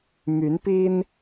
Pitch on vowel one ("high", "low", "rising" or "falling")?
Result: rising